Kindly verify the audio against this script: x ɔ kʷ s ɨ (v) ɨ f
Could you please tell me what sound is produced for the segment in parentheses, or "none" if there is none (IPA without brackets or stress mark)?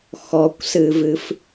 v